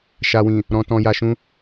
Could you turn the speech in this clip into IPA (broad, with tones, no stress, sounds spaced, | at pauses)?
ʃ a˨ w ĩ˨ | ɾ ɔ̃˨ t ɔ̃˨ j a˨ ʃ ũ˧